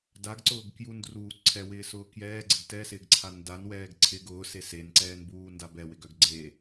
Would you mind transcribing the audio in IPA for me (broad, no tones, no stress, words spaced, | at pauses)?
daɡǀʊːɡkjundruː ǀʰɛwɪːsʊː kjɛːɡ͡ǀɪɡ tɛsɪːɡǀʰa ndanwɛːɡ ǀʰɪɡ ʊːse senǀɛːnbuːndab ɛwɪɡœɡ ɡ͡ǀe